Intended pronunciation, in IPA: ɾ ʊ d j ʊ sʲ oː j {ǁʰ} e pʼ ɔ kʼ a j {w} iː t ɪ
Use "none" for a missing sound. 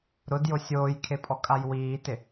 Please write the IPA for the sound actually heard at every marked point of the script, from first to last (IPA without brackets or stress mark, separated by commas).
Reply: kʰ, w